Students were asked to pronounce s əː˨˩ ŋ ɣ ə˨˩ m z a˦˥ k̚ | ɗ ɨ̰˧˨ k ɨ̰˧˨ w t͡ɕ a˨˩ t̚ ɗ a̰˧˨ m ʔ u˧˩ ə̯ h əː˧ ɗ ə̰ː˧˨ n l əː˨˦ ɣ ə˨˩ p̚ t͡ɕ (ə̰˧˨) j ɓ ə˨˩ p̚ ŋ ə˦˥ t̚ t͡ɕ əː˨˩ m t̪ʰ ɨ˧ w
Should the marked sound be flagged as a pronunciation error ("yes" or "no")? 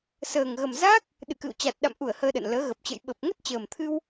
no